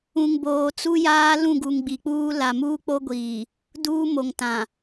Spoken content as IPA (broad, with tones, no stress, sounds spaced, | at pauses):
ũ˨ ŋ b oː˨ t͡s u˦ j aː˦ l ũ˦˨ ɡ u˨ ŋ ɡ͡b i˨ k͡p uː˦ l a˨ m uː˦ k͡p o˦ ɡʷ iː˨ | d uː˦ m o˨ ŋ t ã˨